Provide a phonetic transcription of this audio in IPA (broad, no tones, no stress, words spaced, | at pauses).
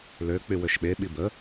lø k͡pywøʃɓe ɓibə